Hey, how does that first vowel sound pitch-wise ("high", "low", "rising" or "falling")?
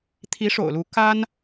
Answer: rising